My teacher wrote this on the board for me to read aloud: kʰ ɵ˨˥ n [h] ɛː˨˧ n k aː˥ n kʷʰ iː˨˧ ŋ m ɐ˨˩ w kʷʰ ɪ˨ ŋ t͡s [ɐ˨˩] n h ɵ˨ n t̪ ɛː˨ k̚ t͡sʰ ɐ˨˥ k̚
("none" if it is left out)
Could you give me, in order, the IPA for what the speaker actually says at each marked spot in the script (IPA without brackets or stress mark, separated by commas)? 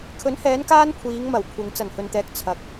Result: h, ɐ˨˩